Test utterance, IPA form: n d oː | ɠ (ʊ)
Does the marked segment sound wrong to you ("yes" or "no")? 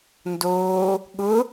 no